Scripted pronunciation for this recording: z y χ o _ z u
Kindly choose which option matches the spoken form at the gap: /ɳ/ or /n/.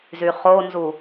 n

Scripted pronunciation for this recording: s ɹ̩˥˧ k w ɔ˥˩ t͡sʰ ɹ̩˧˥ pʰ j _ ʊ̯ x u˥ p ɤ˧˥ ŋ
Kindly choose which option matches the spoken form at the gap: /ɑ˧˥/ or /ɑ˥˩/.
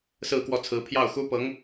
ɑ˥˩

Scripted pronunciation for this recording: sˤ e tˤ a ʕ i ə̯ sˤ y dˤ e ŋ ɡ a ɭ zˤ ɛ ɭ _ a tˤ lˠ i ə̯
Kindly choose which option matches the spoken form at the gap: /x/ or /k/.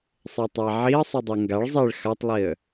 x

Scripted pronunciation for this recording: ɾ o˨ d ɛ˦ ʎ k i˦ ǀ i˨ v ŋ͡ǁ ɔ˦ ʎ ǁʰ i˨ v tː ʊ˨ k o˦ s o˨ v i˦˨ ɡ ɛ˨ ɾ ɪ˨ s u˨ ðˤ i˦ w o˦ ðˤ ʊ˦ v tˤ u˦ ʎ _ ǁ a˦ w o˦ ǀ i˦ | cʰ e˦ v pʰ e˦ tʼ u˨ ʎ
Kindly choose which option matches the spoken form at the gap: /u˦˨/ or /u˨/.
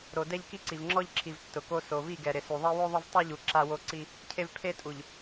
u˨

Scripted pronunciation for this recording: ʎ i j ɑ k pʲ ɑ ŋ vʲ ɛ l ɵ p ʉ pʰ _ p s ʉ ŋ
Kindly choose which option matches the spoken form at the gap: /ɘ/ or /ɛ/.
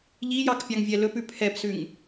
ɛ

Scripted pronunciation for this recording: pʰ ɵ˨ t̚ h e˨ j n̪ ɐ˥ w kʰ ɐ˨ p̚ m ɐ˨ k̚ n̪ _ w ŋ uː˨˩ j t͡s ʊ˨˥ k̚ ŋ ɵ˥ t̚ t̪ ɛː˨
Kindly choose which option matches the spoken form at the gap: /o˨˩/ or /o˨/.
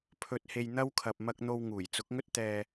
o˨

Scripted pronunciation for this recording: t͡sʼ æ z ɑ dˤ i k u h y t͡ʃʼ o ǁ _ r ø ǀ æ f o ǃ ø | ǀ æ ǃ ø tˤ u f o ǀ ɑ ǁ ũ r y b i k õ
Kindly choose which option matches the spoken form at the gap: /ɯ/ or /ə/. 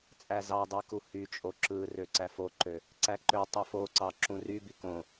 ɯ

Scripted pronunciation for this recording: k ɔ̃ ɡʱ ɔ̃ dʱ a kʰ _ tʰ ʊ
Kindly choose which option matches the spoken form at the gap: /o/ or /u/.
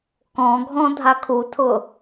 u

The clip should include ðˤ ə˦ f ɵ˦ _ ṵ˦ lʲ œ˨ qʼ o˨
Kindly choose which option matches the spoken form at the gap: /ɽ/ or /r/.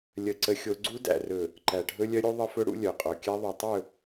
ɽ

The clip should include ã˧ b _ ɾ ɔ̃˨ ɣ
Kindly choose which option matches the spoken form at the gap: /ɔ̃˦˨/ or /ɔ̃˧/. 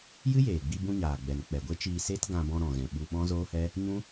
ɔ̃˧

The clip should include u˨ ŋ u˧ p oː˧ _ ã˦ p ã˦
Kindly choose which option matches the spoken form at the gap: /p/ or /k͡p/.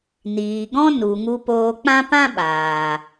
k͡p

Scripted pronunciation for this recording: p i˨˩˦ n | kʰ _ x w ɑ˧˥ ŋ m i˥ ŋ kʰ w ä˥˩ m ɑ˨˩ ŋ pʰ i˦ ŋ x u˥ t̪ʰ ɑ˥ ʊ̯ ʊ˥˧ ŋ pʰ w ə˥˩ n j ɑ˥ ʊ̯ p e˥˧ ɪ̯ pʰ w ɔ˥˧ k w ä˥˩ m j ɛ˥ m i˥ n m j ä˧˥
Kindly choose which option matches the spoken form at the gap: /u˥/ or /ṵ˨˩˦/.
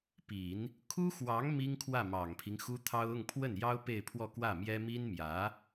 u˥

